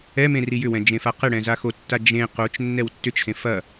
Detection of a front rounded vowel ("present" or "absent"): present